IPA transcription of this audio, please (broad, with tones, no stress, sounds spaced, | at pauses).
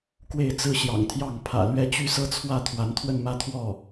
k w e˥˩ ɪ̯ t͡s ɹ̩˥ ɕ j ɑ̰˨˩ ŋ t̪ʰ j ɑ˥˩ ŋ pʰ ä̰˨˩ l ɥ ɛ˥ t͡ɕ y˥ s ɤ˥ t͡sʰ w ä˥˩ t̪ʰ w a˧˥ n t̪ʰ w ə˥˧ n m ä˥˧ t̪ʰ w ɔ˥˩